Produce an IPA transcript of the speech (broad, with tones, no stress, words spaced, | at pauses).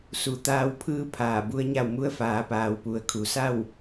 su˩˧t̪aː˧wpʰɯː˧˥ pʰaː˧˩bu˧˥ə̯ɲa˥˨w mu˧ə̯faː˩˧paː˩w pu˩ə̯kʰu˩˧ sa˥˨w